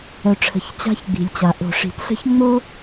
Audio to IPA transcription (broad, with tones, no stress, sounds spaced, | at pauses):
œ˨ ʈ͡ʂʰ ə̤˨ ç t͡ɕ a̤˦ ç ɡ͡b i̤˨ lʲ t͡ɕ a˨ ʔ o̤˨ ʂ i̤˨ t ɬ ə̤˦ ç ŋ͡m o˦